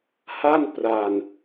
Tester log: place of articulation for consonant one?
glottal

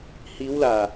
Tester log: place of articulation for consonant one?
glottal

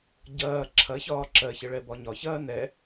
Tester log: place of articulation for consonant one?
palatal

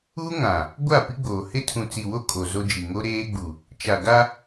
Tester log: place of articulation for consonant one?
velar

